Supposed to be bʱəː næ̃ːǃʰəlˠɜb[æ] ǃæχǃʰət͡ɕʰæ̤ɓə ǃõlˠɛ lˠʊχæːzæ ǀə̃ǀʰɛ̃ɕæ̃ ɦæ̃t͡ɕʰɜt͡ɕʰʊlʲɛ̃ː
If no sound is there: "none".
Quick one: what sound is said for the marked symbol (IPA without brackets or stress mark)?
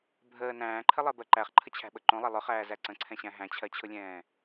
ɜ